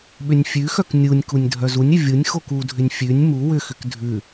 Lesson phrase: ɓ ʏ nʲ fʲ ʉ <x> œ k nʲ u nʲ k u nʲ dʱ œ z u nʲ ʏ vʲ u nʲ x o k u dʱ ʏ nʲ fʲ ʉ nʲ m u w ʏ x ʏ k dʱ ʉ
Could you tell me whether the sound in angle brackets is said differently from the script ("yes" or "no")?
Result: no